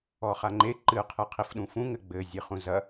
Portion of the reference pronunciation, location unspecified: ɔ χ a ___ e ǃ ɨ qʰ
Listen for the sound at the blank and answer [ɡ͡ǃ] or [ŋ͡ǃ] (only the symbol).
ŋ͡ǃ